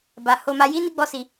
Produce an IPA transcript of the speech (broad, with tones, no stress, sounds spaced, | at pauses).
b a˧ h o˧ m a˧ j i˦ n i˦ ɡ͡b ɔ˦ s i˧